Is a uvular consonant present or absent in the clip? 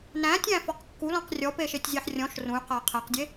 present